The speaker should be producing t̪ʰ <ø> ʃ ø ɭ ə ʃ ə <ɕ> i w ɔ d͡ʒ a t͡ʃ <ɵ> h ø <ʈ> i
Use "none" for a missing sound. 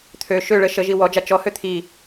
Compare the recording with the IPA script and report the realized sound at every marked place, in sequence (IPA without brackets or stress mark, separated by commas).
ø, ʒ, ɔ, t̪ʰ